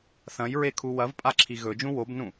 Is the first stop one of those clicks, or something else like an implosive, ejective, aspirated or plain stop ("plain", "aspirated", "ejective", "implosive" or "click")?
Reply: aspirated